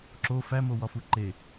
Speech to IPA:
ǁo fæmowɒfu ǃe

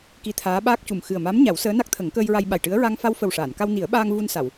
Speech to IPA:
ki˧˥t̪ʰaː˧˥ɓaː˦˥k̚cu˨˩m xɨ˨˩ə̯ma˧˥m ɲa˨˩˦wsəː˧˥na˦˥k̚t̪ʰə˨˩˦ŋ kəː˧jɹa˧j ɓa˨˩jʈɨ˧˥ə̯ ɹa˧ŋ fa˧wfə˨˩wʂaː˨˩˨n ka˧wni˨˩˦ə̯ɓaː˧ŋ vu˧nsa˨˩˨w

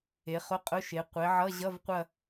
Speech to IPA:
e˩˧χʊ˧˥˧qʼʊ˧˥˧ʃe˩˧ qʷe˩˧ʕʌ˧˥˧ ʑʌ˧˥˧vqʷɐ˦˨

